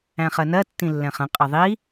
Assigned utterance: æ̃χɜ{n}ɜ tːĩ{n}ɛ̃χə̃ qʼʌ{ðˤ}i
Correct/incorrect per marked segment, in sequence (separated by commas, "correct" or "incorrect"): correct, incorrect, correct